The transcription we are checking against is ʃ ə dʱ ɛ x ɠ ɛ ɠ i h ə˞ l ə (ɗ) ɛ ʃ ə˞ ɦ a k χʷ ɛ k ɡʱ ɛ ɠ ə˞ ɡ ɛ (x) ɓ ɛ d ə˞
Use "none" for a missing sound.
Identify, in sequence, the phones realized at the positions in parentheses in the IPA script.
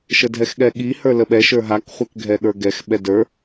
ɓ, x

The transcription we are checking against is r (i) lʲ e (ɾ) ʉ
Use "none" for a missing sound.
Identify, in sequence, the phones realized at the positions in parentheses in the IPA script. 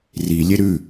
i, ɾ

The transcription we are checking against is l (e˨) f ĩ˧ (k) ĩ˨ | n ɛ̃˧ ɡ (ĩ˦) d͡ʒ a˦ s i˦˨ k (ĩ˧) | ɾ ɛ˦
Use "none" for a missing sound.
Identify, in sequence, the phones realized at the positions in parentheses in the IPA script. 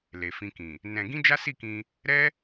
e˨, k, ĩ˦, ĩ˧

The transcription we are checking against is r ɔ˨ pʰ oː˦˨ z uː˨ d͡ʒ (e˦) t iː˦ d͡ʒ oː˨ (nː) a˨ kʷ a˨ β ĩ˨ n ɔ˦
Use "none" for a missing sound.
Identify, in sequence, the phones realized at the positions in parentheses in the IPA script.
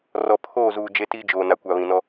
e˦, n

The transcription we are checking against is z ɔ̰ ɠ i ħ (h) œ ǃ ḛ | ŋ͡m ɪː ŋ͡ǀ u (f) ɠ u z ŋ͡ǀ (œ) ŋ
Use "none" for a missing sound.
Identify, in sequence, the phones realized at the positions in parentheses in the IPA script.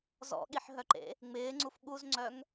ɦ, f, œ

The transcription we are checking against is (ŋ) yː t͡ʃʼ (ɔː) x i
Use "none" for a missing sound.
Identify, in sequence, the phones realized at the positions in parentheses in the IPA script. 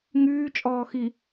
ŋ, ɔː

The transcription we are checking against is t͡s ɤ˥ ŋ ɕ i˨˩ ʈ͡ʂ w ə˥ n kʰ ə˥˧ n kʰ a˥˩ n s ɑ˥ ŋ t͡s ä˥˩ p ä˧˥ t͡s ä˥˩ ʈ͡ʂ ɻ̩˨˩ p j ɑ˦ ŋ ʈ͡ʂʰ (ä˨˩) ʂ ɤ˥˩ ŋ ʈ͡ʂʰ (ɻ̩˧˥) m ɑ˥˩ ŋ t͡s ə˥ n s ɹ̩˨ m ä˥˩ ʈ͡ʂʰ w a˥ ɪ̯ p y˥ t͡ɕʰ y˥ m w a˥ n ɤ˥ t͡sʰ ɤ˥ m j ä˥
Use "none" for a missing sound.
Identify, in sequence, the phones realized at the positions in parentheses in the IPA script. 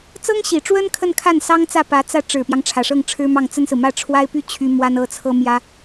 ä˨˩, ɻ̩˥

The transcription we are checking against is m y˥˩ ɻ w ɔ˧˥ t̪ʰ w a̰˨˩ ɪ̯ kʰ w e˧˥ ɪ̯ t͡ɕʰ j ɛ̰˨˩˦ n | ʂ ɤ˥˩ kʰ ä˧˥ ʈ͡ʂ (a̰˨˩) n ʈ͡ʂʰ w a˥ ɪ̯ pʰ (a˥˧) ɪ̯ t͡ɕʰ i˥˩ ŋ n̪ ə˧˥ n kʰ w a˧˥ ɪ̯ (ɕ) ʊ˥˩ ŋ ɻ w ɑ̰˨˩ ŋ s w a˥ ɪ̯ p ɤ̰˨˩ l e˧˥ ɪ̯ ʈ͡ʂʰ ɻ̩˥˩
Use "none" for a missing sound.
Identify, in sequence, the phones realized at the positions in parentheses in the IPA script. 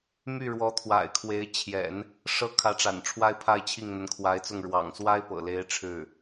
a̰˨˩, a˥˧, t͡s

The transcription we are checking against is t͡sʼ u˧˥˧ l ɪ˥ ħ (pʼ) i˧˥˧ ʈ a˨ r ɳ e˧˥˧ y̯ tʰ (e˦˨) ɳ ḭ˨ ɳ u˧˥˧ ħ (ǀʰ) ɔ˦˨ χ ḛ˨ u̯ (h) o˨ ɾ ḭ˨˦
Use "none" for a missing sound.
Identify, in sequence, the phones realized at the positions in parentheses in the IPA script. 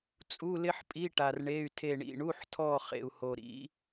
pʼ, e˦˨, tʰ, h

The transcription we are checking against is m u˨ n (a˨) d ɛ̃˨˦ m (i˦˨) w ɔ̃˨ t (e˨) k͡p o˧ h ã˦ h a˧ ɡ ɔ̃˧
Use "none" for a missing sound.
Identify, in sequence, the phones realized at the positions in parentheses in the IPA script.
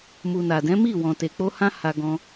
a˨, i˦˨, e˨

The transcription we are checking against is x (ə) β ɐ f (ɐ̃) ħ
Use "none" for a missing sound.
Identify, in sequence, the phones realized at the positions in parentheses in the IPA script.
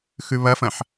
ʉ, ɐ̃

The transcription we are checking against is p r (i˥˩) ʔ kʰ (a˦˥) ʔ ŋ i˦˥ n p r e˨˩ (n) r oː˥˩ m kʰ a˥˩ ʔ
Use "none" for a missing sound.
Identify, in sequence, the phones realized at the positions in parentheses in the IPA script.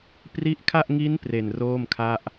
i˦˥, a˥˩, n

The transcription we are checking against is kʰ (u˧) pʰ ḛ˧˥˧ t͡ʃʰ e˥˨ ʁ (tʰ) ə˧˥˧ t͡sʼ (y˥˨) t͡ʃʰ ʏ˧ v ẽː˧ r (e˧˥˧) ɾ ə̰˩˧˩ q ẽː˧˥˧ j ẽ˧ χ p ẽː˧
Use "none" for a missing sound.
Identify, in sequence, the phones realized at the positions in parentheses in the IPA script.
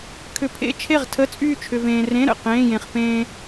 ʏ˧, tʰ, yː˥˨, ẽ˧˥˧

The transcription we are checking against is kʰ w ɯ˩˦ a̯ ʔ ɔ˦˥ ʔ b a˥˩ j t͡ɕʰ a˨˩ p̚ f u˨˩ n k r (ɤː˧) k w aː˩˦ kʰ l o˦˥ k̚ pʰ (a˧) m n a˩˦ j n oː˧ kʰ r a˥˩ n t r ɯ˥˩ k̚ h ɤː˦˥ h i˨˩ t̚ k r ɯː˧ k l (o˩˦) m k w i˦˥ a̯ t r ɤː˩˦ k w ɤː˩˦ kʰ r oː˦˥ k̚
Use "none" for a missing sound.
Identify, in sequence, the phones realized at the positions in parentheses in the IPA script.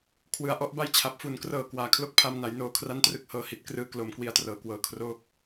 ɤː˨˩, a˧, o˩˦

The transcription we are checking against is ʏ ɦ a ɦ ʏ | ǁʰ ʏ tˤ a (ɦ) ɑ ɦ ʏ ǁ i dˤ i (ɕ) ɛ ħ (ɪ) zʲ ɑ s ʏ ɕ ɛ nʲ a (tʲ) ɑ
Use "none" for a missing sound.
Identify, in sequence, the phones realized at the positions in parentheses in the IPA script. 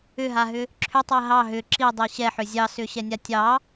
ɦ, ɕ, ʏ, tʲ

